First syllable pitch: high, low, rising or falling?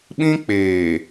high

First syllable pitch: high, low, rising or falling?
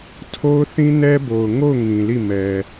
high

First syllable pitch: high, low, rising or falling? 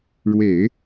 low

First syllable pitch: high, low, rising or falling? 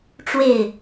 falling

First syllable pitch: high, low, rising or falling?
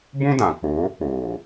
high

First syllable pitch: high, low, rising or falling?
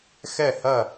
falling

